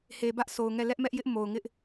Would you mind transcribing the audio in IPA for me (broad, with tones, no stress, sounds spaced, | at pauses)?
h e˨ b ä˦ ʔ sʰ o˨ ʊ̯ ŋ ɛ˦˨ l ɛ˦ ʔ m ɛ˦ ʔ j ɪ˦ ʔ m o˨ ʊ̯ ŋ ɪ˦ ʔ